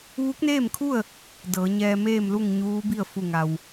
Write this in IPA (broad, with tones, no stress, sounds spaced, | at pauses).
ʋ u˧˥ k̚ n eː˥˨ m kʰ u˥˨ ə̯ | d ɤː˩˧ ɲ ɛː˧ m eː˥˨ m l u˥˨ ŋ ɲ uː˧˥ b i˥˨ ə̯ f u˧˩ ŋ a˩ w